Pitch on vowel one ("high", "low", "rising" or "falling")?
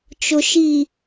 low